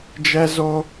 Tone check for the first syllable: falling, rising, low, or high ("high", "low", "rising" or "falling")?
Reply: high